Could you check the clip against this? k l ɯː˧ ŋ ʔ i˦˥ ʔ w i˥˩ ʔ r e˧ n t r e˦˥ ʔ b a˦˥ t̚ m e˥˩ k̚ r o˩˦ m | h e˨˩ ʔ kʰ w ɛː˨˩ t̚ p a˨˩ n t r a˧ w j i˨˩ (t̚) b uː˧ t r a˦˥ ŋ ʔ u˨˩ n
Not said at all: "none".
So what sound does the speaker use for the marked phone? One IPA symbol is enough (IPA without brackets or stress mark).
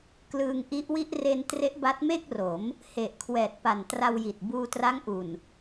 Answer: t̚